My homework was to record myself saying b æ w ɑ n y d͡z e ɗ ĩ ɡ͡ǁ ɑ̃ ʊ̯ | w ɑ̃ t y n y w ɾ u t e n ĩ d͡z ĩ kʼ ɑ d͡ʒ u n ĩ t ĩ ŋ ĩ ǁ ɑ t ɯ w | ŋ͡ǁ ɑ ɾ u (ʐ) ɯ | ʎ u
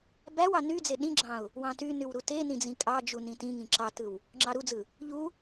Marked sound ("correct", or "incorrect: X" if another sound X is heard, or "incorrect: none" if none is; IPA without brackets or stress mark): incorrect: d͡z